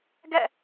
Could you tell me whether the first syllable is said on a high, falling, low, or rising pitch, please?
falling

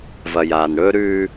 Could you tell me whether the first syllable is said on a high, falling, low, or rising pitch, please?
low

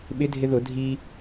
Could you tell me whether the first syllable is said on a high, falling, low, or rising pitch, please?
rising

